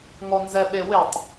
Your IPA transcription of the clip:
ŋ ɔ n z ɛ ɓ e w ɪ tˤ

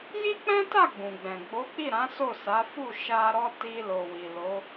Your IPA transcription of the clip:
j i˦ k͡p ɛ̃˦ t a˦˨ ɡ͡b ũ˨ ɡ͡b ɛ̃˨ ɡ͡b o˨˦ k͡p i˦˨ ɾ ã˨˦ s o˦˨ s a˨˦ f u˦˨ ʃ a˧ ɾ ɔ˦ t i˧ l o˨ w i˨ l o˨˦

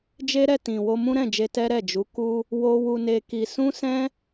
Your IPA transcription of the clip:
d͡ʒ e˦ ɾ ɛ˦˨ t ĩ˨ w o˧ m ũ˦ ɾ ɛ̃˦˨ d͡ʒ e˧ t ɛ˦ ɾ ɛ˦˨ d͡ʒ u˨˦ k u˦ | w o˦ w u˧ n e˧ k i˧ s ũ˦ s ɛ̃˦

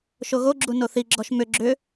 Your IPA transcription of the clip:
ʃ o ɣ o ɡ͡ǁ u n o θ i ɡ͡ǁ ɔ ʃ m ʏ ɡ͡ǁ ʏ

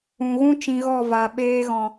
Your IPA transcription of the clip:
ũ˨ ɣ ũ˦ t͡ʃ ĩ˧ ɣ ɔ˦˨ v a˨ ɓ eː˧ ɣ ɔ̃˨

